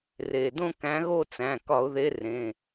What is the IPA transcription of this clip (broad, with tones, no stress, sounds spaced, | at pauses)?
r eː˩ d õ˦˨ k æ̃˨˦ ɣ o˦˨ t͡s æ̃˩˧˩ k ɒ˧˩˧ ʊ̯ ð e˨˦ r ẽ˩˧˩